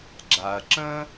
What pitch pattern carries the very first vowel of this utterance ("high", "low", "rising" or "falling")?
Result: low